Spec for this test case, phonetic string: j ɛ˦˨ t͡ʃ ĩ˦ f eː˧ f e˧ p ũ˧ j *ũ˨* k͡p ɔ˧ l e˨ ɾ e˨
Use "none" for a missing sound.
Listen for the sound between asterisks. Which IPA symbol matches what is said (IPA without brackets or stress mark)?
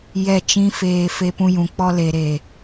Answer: ũ˨